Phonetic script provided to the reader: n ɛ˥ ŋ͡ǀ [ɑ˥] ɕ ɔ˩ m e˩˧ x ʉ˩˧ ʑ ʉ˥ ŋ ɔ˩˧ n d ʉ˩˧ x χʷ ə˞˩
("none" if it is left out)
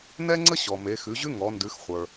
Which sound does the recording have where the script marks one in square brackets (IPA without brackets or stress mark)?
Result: ə˥